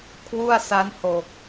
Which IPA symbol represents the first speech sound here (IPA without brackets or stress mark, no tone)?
kʰ